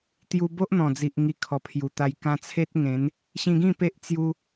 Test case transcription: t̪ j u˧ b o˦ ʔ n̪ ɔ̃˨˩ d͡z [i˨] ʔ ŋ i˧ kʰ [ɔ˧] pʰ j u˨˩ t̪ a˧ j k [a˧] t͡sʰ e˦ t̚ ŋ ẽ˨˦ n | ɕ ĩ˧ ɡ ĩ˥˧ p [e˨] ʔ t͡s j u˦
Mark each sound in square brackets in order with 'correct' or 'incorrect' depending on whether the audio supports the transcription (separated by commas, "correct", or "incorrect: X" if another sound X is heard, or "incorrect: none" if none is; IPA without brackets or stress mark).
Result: correct, incorrect: ɔ˨˩, incorrect: ã˧, incorrect: e˦